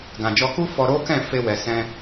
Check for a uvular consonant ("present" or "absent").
absent